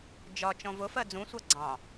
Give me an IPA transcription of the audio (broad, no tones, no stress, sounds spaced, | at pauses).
d͡ʒ ɒ t͡ʃ ɔ̃ v ʊ f ɜ d͡z ũ sʷ æ ɡ͡ǀ ɑ̃